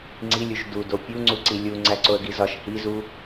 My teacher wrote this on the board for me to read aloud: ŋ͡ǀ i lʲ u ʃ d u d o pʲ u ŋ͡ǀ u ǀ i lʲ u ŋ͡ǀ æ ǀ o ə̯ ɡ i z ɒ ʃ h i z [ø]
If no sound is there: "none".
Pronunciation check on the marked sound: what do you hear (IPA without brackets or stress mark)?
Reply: u